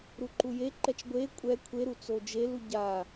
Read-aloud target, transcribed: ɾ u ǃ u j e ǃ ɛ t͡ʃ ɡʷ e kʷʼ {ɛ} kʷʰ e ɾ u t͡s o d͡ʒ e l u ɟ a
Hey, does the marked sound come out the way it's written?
yes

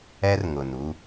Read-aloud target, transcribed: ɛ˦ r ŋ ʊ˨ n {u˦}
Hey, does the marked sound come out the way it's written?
yes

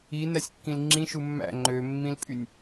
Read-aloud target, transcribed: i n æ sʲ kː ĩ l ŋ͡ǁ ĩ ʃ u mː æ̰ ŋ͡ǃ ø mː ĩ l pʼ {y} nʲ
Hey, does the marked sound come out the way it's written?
yes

